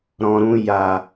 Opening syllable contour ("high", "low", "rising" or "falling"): low